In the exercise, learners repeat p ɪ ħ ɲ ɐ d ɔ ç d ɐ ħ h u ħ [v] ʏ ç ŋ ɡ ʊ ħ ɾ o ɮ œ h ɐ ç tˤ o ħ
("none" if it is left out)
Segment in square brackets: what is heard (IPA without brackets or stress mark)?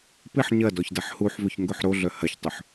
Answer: v